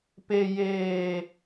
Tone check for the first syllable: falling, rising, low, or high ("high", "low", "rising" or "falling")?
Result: low